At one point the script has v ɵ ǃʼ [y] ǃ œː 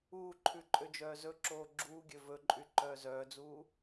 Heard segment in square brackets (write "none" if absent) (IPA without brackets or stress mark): y